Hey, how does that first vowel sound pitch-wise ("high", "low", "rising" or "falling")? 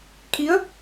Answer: rising